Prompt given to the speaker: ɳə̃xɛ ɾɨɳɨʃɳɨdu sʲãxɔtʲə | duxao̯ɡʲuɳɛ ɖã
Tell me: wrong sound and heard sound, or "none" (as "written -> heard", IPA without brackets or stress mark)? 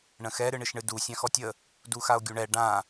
none